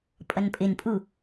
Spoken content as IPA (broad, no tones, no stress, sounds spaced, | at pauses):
pʼ ʌ n pʼ ɪ n pʼ u